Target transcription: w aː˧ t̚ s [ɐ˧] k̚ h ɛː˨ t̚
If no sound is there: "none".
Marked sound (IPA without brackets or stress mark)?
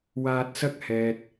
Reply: ɐ˥